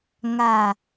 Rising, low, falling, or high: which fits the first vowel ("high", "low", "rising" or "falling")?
low